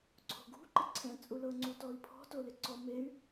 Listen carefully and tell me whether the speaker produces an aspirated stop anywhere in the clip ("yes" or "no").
yes